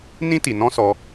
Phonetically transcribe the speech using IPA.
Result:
n ĩ˦ t i˨ n ɔ̃˦ s ɔ˧

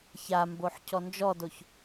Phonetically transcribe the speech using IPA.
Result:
ç a m b o ħ cʰ ɔ n d͡ʒ ɔ d o ç

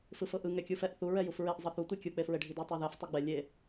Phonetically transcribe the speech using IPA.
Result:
f ɯ f ɤ ʔ ɯ ŋ ɛ kʲ u f ɛ ʔ θ u ɹ ɛ j u f ɹ e ʔ zˤ ɤ θ u tʷ i kʲ u k͡p e f ɹ e ɖʱ i d ɤ tˤ ɛ ð ɛ f tˤ i ɡ͡b ɛ lʲ e

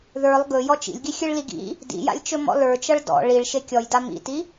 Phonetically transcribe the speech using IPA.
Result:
ð ə˞ lˠ ɡ ɵ j ɔ t͡ʃ ḭ lʲ ɡ i xʲ ɨ ɭ l i ɡ ḭ | d ḭ j a̰ lʲ t͡ʃ ɵ m ɔ̰ l ə˞ t͡ʃ ʌ ɭ d ɔ̰ ɭ i ɭ ʃ e kʲ ɔ j d a m ḭ t i

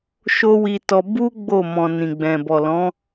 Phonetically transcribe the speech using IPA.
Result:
ʃ o˦ w i˧ t ɔ˧ b u˦ ɡ͡b o˦˨ m ɔ̃˨ n ĩ˨ ɡ͡b ɛ̃˨ b ɔ˨ l ɔ̃˨˦

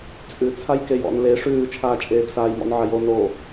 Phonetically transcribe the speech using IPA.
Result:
t͡sʼ ʉ t͡sʰ a j k e j ɔ̰ n l e ʂ ʉː t͡ʃʰ aː t͡ʃʼ eː b s aː j m ɔ̰ n ʕ a j o n o

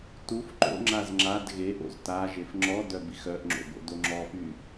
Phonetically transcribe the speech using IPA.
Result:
t u f ǃ o̰ ŋ͡ǁ a z ŋ͡ǁ a d ɣ e ʔ o̰ z t a ʒ e f ŋ͡ǁ ɔ d œ b i x œ ʔ ŋ͡ǁ o̰ b o̰ d o ŋ͡ǁ ɔ f y

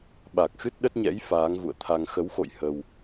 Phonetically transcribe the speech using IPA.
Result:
ɓ a˨˩ k̚ x ɨ˦˥ t̚ ɗ ə˦˥ t̚ ɲ ɛ̰˧˥ j f aː˨˦ ŋ ɣ ṵ˧˨ ə̯ t̪ʰ a˧ ŋ x ə˨˦ w x o̰˧˨ j h ə˧ w

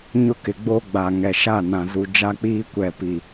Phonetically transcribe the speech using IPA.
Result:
ɲ ʊ˦ k ɪ˨ ɡ͡b o˦ ɡ͡b a˨ ŋ ɛ˨ ʃ a˦˨ n ã˨ z u˨ d͡ʒ a˦ k͡p iː˦ kʷ ɛ˨ p i˨

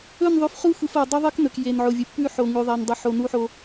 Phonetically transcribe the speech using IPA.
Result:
ɵ˦˨ n ðˤ ʉ˨ f χ u˦ xʷ ɨ˨ f o˨ dˤ u˦ ðˤ ɨ˦ k n ɵ˨ k j e˨ n ʕ o˨ vʲ ɨ˨ pː ʉ˦ ħ o˨ ŋ ʉ˨ ðˤ a˨ n dˤ u˨ ħ o˨ n u˦ ħ o˦

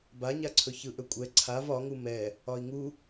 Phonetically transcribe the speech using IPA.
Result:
b a ɲ a ǀʰ ɵ ç ɯ ʔ ɵ kʷʼ ɛ ǀʰ a v ɒ ŋ u m ɛ | ɒ i̯ ŋ u

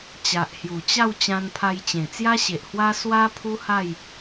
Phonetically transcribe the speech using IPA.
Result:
t͡ɕ a˨ ʔ h j u˨˩ t͡ɕ a˥˧ w t͡ɕ ã˧ n pʰ a˧ j t͡ɕ ẽ˨˩ t͡s j a˦ ɕ e˨ ʔ h w a˦ s w a˦ pʰ u˦ h a˥˧ j

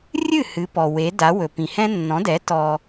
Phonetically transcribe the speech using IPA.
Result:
rʲ ɨ˥˩ h ɨ˩˥ p ɔ˩ w e˩˥ d a˩˥ w ɵ˩ p ĩ˩ h ɛ̃˥ nː ɔ̃˩˥ d ɛ˩˥ t ɔ˧

